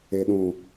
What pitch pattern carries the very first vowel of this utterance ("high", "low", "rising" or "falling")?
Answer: low